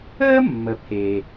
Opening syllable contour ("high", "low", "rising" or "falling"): high